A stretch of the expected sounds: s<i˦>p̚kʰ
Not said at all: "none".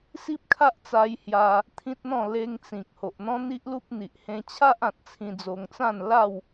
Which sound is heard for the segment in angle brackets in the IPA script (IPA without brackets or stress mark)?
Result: i˦